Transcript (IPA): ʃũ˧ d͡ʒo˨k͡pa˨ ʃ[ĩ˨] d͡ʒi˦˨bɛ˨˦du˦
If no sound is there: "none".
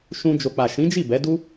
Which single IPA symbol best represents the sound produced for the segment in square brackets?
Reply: ĩ˨˦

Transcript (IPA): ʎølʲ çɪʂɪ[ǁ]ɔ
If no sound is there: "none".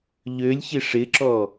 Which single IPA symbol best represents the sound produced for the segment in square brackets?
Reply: ǁ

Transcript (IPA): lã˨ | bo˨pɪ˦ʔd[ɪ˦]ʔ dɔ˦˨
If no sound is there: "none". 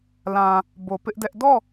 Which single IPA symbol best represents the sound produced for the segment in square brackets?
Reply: ɛ˦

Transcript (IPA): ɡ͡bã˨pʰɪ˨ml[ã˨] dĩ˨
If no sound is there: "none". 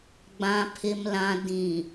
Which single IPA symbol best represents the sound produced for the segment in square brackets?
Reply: ã˨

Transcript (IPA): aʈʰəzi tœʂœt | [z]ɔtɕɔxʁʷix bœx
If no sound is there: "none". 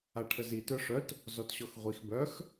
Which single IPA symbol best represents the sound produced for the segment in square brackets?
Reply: z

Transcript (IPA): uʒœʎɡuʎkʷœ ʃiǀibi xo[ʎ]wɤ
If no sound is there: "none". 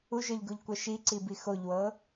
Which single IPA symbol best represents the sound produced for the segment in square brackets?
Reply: ʎ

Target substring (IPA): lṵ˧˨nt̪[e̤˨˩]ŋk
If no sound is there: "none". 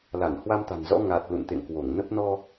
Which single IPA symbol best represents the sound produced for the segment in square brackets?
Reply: ḛ˧˨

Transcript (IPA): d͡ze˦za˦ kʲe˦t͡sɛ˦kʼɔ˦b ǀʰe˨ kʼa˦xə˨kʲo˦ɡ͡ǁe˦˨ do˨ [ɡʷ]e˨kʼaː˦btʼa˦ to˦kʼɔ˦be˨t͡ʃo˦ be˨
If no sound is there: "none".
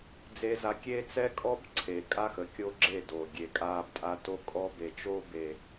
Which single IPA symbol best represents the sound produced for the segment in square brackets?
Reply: ɡʲ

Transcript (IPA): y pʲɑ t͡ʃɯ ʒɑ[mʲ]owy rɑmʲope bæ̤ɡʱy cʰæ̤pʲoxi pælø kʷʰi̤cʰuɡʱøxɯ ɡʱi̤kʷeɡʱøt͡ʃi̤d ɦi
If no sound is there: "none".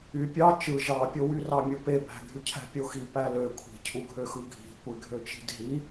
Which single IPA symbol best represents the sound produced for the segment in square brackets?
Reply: pʲ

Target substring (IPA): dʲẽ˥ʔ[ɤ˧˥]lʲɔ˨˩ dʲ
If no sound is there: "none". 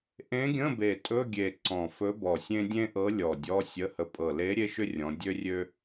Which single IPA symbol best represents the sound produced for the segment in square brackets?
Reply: ɤ˧˥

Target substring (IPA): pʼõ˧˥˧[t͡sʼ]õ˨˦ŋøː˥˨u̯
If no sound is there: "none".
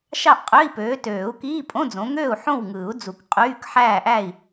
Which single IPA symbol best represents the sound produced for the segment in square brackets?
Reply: d͡z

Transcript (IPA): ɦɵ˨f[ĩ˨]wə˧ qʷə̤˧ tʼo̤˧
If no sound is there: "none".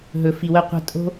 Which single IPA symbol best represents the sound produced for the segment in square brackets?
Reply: i˨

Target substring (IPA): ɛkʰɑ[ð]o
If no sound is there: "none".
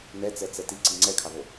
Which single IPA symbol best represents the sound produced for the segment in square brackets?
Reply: ð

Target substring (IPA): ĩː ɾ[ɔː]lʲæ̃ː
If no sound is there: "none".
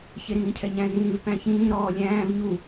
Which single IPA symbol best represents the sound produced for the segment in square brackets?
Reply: ɔː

